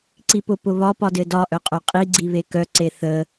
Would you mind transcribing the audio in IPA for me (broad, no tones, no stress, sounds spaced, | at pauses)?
ǀ i p ʊ p ʊ β ɒ p ɒ d ɘ d ɒ ʔ œ qʼ œ qʼ i ɡ͡ǀ i β e k œ ǀ e θ ə